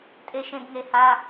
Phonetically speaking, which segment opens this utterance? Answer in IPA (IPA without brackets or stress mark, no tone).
tʼ